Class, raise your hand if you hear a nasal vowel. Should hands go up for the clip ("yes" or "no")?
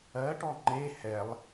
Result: no